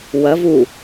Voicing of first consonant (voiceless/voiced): voiced